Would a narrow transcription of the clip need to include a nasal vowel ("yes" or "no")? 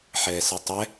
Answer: no